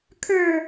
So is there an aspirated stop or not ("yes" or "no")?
yes